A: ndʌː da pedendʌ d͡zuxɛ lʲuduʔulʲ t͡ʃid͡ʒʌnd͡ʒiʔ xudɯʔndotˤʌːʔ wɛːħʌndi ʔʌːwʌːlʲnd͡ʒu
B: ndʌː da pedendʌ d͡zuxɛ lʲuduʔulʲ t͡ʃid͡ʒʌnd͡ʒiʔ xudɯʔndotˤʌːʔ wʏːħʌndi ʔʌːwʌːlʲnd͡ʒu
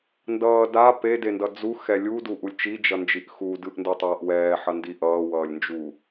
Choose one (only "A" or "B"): A